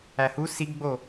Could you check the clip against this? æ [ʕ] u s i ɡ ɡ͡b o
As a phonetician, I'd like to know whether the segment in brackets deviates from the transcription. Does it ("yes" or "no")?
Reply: yes